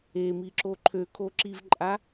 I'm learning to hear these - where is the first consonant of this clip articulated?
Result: lips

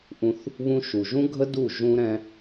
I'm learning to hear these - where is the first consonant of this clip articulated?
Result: throat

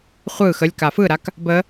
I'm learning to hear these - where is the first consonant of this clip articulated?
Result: uvula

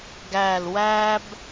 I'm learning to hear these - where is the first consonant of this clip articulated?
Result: velum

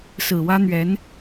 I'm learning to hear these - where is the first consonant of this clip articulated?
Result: tongue tip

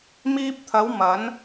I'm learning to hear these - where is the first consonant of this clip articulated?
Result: lips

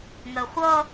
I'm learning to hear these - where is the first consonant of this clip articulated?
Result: velum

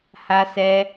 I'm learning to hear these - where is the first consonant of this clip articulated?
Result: throat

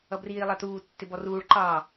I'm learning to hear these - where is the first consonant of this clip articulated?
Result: lips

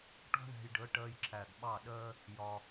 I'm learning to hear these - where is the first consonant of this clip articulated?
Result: retroflex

